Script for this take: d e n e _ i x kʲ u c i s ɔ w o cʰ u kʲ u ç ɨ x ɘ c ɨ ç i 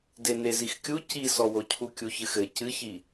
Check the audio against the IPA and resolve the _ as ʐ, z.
z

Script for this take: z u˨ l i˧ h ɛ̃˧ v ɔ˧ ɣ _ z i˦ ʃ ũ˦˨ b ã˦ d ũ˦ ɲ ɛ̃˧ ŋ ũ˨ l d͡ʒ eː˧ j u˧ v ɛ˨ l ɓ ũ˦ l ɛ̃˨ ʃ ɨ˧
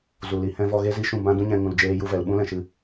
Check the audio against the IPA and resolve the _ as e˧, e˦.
e˦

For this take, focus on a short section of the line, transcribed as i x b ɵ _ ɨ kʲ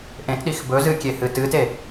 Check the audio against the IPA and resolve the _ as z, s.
z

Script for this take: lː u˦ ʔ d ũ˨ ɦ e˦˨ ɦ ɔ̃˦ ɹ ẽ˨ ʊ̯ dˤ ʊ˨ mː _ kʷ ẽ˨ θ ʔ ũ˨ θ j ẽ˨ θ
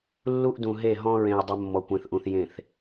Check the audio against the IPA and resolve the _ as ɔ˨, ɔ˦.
ɔ˨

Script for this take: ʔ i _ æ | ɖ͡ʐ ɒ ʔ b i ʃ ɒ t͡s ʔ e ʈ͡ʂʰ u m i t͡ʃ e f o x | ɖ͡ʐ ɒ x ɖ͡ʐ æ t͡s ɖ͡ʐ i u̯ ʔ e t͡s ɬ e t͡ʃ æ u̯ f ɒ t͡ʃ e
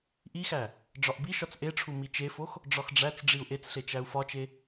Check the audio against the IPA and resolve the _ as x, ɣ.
x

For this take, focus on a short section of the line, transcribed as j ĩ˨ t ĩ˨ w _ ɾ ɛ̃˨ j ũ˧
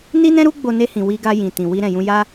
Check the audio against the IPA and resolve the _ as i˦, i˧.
i˧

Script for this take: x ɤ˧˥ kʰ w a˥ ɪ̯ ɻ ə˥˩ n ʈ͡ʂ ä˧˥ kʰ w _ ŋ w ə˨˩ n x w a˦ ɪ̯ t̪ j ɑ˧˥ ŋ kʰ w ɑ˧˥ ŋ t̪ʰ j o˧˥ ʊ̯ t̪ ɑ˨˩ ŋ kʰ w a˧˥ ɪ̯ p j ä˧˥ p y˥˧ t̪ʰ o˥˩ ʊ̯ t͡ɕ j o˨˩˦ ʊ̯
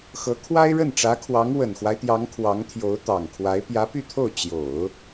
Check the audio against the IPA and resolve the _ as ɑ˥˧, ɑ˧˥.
ɑ˧˥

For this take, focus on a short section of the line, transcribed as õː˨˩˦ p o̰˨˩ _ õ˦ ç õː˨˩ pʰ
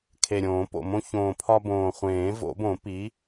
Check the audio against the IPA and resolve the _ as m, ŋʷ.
m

